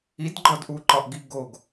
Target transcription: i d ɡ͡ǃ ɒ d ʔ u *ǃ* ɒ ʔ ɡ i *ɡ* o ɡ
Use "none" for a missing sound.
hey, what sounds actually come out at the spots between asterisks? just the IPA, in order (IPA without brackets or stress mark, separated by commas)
ǃ, ɡ